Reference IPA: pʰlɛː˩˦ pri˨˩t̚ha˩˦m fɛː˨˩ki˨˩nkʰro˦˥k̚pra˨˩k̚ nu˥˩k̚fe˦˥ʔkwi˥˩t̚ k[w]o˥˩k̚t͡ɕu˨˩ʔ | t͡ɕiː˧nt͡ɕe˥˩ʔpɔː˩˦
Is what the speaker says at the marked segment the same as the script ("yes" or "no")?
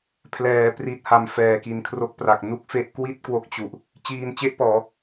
yes